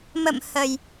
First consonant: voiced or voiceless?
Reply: voiced